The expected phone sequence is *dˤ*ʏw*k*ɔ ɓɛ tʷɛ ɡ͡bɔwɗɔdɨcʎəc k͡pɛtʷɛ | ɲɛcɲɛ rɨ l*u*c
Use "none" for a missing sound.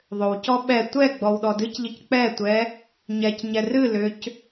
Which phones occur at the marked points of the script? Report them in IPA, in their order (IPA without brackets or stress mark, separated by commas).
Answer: ðˤ, c, ʏ